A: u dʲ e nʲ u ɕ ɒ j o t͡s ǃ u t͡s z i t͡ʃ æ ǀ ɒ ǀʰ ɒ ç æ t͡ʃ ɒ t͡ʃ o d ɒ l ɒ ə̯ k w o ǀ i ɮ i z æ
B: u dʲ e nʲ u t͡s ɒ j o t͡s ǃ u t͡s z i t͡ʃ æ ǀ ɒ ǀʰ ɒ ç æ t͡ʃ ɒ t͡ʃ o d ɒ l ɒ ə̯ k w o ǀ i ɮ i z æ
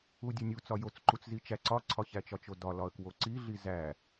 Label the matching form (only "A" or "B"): B